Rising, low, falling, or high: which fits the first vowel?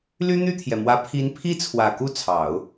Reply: high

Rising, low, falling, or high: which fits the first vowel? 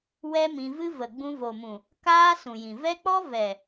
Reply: high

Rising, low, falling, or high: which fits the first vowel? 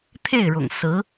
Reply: falling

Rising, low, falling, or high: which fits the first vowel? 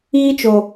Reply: high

